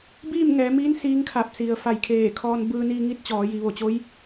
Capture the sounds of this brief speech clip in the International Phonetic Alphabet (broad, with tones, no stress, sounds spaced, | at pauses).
b iː˥˨ m ŋ ɛː˩˧ m iː˧˥ n s iː˧˥ ŋ kʰ a˧˩ p̚ s i˩ ə̯ f a˧˩ j kʰ eː˧˩ kʰ ɔː˧ n b ɯː˧ n iː˧ ŋ i˧˥ t̚ t͡ɕ ɔː˩˧ j i˩˧ ʋ o˧˩ t͡ɕ o˧˥ j